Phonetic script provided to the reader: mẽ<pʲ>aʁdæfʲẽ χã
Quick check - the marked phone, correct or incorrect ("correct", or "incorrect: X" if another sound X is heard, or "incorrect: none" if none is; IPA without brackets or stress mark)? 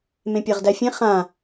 correct